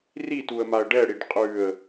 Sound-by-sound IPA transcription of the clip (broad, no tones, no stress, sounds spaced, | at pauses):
r i t u ə̯ m a ə̯ ɖ ɛ ɽ i ɖ qʼ ʉ ə̯